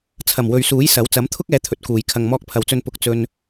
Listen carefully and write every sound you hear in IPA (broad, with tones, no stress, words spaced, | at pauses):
t͡sʰɐ˨˩mwɵ˨ɥsuː˨˥j sɐ˨˥w t͡sɐ˨˥mt̪ʰʊ˥k̚ɛː˨˧ t̪ʰɵ˨t̚kuː˨j kʰɐ˨ŋmɔː˧k̚pʰɐ˨wt͡sɵ˧n pʊ˧k̚ t͡sɵ˧n